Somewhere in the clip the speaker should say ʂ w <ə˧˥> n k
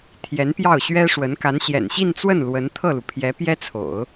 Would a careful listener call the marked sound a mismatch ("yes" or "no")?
no